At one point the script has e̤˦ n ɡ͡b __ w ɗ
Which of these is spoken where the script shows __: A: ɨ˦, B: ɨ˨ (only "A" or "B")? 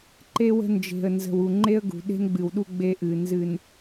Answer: B